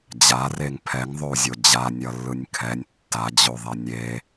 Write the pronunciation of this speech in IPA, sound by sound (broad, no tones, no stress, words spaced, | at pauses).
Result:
d͡ʑareŋ pʰɛŋðˤou̯zʲo d͡ʑanʲʌlːɯnʲ kʰɛnʲ tːad͡ʑoðˤɛ nʲe